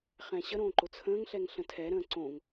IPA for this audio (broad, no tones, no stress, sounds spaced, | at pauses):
χ ɛ̃ ɕ ə ɾ õː ǃ ʊ t͡sʰ ə̃ː ŋ ɬ ɛ ŋ ɬ ə̃ tʰ ɛ ɾ ə̃ː ǀ õ ŋ